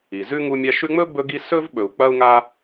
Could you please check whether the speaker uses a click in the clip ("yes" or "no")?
no